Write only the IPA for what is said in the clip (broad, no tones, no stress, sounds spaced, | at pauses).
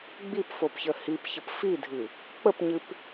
ɡ͡b i p f o p ç ə h i p ç ə p f i dʱ ɨ | k͡p ə p ɲ ɨ p